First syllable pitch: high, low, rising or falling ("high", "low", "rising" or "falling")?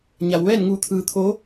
low